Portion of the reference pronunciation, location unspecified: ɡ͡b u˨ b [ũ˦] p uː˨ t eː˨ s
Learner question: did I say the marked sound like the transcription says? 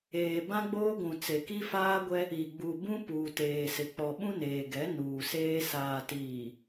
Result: yes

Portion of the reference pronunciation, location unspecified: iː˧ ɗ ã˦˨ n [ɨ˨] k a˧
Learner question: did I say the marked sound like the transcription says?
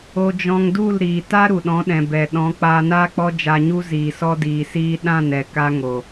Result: no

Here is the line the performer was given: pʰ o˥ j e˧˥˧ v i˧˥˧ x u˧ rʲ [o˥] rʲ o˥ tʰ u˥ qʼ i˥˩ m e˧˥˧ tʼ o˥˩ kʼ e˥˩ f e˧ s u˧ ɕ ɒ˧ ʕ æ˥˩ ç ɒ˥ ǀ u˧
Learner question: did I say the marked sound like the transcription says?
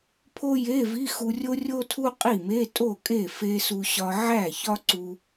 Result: yes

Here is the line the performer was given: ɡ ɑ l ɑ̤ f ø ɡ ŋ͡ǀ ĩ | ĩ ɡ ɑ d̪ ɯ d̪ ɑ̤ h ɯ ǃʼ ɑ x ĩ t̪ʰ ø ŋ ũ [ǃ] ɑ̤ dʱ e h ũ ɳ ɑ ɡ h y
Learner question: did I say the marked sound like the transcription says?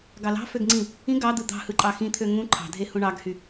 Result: no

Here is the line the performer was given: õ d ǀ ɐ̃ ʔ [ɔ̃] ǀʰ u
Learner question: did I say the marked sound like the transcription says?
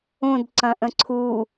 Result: no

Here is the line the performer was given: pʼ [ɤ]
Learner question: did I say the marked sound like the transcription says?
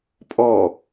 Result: no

